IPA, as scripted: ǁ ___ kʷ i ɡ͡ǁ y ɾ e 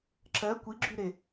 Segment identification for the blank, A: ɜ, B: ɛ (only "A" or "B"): A